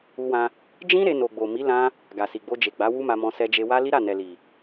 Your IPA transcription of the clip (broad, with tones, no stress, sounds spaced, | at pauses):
u˧ w ã˧ | d͡ʒ ĩ˦ ɾ e˧ n o˨ ɡ͡b o˨ m i˨˦ l ã˦ | ɡ a˨ s i˨ ɡ͡b o˧ d͡ʒ e˨ ɡ͡b a˨˦ w u˦ m a˧ m ɔ̃˧ s ɛ˧ d͡ʒ e˧ w a˦ l i˦ ɾ a˦˨ n ɛ˨ l i˨